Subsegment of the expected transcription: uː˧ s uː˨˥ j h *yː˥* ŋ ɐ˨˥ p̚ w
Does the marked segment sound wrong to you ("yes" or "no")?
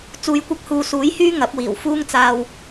no